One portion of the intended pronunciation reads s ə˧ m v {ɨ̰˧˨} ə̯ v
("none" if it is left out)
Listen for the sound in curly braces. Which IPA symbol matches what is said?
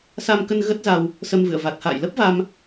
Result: ɨ̰˧˨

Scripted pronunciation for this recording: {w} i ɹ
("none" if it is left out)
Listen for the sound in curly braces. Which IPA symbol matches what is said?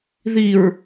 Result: ð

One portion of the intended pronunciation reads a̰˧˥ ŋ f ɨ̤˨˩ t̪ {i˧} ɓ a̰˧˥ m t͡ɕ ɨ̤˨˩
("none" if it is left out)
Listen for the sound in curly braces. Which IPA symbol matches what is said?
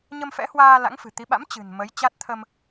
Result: i˨˦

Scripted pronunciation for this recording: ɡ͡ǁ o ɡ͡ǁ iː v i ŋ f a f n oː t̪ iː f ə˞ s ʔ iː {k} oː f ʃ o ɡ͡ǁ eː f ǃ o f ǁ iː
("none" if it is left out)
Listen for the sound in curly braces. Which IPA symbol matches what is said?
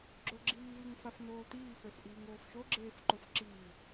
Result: ŋ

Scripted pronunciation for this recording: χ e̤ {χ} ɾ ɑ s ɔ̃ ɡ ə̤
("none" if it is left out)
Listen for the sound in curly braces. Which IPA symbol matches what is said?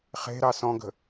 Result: none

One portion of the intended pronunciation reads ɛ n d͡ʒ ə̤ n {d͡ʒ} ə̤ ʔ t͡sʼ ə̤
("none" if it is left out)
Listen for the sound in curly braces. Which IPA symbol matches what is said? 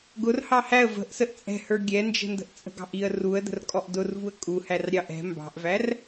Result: d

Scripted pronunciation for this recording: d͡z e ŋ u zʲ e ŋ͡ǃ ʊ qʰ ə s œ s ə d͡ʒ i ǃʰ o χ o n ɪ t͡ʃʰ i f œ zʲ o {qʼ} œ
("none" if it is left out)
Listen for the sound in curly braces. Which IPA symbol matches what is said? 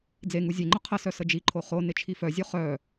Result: χ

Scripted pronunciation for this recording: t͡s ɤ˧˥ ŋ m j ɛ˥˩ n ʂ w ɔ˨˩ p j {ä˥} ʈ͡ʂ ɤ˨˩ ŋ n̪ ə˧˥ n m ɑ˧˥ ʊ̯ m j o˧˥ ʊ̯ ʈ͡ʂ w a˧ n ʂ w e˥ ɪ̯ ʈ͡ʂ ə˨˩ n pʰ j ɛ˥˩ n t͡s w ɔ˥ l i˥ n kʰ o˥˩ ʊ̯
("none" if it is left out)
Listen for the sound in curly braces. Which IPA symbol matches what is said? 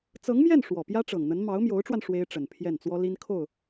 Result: ä˥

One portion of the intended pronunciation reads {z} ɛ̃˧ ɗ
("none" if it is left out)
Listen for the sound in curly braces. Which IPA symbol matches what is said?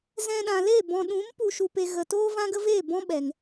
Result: z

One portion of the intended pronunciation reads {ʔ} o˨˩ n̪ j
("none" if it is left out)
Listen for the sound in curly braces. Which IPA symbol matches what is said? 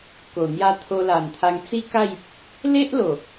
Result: k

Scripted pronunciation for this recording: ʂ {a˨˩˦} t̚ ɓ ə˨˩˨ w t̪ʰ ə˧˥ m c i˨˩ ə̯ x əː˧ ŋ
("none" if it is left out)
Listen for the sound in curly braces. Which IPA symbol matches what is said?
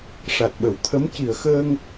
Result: a˨˩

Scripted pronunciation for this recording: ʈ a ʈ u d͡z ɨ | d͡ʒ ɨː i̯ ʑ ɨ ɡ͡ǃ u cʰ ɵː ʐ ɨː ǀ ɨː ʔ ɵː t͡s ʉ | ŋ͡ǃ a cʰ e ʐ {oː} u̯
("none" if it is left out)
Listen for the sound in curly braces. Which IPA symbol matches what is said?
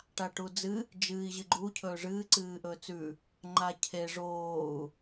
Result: oː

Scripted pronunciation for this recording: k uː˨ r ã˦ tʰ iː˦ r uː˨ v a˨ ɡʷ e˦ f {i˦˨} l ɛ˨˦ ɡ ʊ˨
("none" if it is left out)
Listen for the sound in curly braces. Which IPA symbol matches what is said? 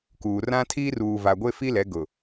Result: i˦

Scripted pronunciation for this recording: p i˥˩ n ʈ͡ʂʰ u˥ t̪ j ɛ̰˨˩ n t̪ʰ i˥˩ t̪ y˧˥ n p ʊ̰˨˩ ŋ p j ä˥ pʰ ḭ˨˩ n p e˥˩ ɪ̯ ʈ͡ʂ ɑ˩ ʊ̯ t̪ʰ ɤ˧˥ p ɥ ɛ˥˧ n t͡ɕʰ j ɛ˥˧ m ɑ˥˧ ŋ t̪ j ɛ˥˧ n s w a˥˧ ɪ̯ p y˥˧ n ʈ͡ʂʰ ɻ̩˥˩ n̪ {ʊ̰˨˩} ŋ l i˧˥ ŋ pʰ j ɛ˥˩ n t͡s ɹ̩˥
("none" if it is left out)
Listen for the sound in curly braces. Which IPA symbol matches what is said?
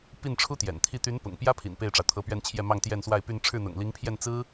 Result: ʊ̰˨˩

